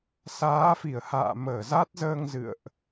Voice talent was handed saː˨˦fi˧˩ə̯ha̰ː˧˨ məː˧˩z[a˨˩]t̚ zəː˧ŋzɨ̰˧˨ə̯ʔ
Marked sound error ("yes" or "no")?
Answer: yes